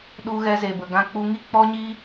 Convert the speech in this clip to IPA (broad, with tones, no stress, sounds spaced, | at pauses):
ɗ u˧ ɣ ɛ˧ z e˨ b ə˨ ɡ ã˧ k͡p u˧ ŋ i˦ k͡p ɔ˦ ɲ iː˦